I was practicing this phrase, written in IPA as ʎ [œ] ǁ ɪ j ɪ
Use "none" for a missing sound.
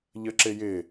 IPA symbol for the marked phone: ə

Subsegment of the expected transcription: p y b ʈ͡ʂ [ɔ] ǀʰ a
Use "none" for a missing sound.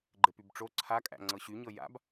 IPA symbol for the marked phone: o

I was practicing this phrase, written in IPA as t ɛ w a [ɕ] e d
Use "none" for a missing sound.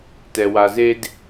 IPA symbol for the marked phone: z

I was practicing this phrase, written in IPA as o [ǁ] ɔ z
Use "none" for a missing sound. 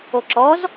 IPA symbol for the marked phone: ǁ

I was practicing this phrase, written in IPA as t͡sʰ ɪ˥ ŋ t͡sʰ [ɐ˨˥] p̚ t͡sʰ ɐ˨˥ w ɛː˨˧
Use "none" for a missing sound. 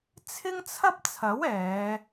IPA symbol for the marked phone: ɐ˥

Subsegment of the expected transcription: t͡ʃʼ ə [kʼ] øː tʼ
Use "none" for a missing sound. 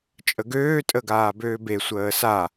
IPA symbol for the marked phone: ɡ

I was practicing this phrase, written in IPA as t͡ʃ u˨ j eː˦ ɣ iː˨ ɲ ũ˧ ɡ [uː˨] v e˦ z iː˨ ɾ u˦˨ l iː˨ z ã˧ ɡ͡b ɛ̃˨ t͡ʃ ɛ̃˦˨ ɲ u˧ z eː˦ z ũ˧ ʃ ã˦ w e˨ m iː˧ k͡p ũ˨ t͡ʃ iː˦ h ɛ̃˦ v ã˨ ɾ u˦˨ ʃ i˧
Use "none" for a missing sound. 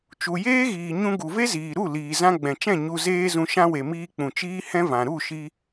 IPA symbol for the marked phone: u˨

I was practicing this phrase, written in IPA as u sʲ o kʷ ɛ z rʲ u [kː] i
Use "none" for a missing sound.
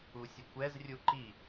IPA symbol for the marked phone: ǃ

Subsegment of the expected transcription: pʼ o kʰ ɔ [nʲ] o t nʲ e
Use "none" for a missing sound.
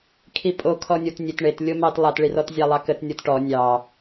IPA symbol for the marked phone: nʲ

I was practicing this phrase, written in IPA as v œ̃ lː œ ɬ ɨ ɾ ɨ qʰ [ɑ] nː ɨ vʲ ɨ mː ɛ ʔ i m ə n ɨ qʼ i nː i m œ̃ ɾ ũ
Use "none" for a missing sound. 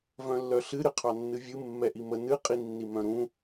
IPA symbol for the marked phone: ɑ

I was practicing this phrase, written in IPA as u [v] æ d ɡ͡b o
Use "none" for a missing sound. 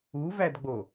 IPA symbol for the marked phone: v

